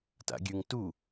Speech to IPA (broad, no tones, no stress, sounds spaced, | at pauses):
t a̰ ɡʲ ʉ ŋ t u